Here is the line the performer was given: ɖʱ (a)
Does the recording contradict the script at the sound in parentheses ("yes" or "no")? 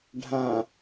yes